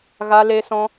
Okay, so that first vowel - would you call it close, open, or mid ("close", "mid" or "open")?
open